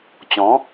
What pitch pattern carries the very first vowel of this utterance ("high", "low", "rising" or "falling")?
rising